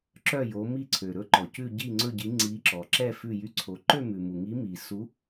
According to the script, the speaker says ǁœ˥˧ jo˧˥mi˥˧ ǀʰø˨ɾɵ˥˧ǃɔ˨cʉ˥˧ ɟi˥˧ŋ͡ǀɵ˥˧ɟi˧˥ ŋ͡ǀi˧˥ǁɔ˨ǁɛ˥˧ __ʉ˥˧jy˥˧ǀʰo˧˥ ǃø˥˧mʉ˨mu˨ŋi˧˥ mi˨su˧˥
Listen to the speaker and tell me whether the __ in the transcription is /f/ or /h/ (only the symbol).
f